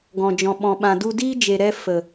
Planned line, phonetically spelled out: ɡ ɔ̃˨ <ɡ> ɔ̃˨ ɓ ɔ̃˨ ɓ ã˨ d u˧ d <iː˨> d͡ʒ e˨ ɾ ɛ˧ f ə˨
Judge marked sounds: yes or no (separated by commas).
no, no